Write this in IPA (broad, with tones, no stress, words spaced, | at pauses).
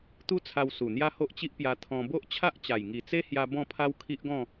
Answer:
t̪u˦t͡sʰa˧w su˨˩n̪ja˦ ho˦ʔt͡ɕi˦ʔpja˧ t̪ʰɔ̃˧ bo˦ʔt͡ɕʰa˦ʔt͡ɕa˨˩j ŋi˨˩t͡se˦hja˧ bɔ̃˥˧pʰa˦wkʰi˦ʔɡɔ̃˥˧